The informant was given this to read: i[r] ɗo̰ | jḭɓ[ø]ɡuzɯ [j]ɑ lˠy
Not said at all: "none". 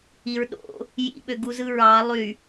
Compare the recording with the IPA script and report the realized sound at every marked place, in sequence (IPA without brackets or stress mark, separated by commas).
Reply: ɹ, ø, ɹ